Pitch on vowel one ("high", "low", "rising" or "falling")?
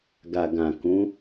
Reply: low